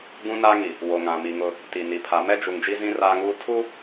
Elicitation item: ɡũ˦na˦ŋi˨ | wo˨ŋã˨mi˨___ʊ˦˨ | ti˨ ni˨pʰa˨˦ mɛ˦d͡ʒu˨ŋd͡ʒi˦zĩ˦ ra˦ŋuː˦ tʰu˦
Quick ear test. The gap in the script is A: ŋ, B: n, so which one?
A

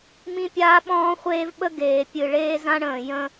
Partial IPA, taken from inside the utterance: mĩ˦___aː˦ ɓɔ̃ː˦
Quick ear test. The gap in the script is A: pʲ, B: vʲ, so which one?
A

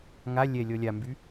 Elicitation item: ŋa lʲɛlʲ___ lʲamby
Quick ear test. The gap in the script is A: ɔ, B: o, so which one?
A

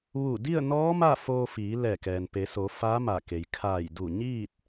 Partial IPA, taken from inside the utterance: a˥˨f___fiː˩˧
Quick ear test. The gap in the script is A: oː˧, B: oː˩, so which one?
A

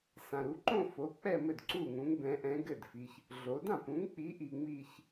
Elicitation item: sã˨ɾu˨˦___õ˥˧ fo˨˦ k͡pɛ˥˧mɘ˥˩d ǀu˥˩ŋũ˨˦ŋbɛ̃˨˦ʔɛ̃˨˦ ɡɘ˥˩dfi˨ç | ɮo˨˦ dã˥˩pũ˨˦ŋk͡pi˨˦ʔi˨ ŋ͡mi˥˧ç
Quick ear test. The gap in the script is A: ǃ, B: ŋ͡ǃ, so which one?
A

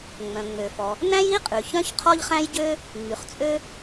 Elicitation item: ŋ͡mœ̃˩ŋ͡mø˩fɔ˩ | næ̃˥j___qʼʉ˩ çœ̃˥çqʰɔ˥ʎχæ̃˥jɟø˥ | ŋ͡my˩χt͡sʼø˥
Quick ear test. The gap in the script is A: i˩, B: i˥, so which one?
B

